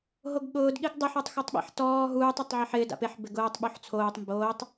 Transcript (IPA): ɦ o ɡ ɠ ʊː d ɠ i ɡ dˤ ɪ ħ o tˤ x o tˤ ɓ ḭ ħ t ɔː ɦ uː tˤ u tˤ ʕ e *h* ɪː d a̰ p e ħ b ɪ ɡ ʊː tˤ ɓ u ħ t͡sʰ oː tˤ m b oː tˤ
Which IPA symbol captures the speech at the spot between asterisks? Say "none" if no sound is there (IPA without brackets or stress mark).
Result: ħ